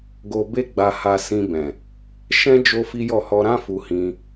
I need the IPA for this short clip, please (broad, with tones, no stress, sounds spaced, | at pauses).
ɡ o˧ b e˦ ɡ͡b a˧ h a˧ s ĩ˧ b ɛ̃˨ | ʃ ɛ̃˦ d͡ʒ o˦ f i˦ j ɔ˦˨ h ɔ˧ ɾ ã˦ f u˧ h ĩ˧